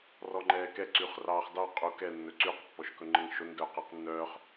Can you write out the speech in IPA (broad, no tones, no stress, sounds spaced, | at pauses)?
r ɔ ŋ͡ǃ ɛː k ɛ ǀ y χ r ɑː χ d ɑ qʼ u k ɛ nː ɵ ǀ y q pː ɔ ʃ k ɵ ŋ͡ǃ ə ŋ ʃ o n d œː q ɛ q nː œː χ